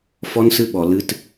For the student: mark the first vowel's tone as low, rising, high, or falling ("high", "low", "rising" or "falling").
high